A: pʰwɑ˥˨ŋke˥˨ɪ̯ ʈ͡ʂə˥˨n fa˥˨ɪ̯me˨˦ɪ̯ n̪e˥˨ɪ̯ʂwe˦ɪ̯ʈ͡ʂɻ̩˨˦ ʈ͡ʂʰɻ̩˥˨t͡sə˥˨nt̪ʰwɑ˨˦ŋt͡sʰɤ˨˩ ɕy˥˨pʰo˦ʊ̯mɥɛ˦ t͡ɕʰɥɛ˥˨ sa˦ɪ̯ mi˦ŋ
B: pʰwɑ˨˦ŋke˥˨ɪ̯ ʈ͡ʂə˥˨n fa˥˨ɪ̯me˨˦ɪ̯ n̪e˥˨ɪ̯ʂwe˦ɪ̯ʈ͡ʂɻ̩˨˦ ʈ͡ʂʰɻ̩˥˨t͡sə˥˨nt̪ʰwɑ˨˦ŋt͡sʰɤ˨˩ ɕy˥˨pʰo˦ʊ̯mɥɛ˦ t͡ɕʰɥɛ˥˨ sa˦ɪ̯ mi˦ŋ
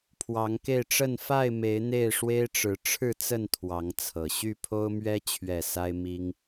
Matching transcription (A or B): B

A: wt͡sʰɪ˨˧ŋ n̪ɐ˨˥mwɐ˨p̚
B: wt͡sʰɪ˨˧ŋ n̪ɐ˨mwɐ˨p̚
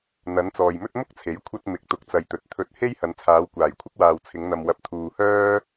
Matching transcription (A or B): B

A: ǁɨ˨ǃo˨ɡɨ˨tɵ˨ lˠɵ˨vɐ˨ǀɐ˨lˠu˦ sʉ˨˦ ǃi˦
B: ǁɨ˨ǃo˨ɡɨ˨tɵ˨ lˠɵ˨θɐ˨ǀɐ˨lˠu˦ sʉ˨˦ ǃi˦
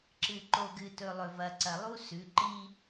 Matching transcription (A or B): A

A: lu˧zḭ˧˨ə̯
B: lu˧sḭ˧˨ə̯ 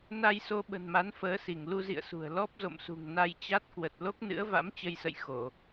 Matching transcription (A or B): A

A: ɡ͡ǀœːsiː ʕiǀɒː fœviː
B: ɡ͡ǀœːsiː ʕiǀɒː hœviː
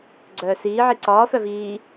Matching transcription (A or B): A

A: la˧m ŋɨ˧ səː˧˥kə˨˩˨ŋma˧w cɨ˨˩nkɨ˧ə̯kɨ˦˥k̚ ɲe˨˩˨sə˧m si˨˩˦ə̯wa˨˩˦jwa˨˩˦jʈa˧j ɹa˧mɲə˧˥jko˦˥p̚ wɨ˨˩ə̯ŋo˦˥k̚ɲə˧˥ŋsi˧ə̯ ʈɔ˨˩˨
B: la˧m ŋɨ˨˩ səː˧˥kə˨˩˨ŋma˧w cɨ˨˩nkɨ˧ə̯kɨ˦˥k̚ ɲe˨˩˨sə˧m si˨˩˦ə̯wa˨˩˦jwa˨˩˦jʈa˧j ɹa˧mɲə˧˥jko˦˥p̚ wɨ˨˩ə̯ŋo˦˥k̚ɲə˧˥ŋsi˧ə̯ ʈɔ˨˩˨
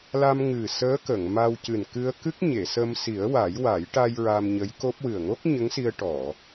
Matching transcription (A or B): B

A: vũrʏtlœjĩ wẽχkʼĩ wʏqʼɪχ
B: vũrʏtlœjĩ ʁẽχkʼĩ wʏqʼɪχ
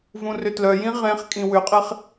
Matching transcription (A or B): B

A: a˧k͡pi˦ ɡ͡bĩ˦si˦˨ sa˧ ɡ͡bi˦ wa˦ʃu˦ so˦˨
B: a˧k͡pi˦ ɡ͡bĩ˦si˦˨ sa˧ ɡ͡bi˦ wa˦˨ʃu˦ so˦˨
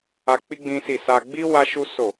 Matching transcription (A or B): A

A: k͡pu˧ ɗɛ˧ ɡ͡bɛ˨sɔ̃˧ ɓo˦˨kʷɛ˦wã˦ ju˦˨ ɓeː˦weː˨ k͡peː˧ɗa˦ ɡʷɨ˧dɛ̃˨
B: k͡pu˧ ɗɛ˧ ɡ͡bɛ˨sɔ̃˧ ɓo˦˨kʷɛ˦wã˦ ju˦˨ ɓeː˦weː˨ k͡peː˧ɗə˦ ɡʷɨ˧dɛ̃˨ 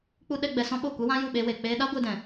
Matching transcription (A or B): A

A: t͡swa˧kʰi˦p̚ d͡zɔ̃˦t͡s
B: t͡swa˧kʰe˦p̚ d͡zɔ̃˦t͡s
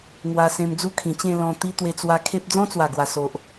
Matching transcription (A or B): B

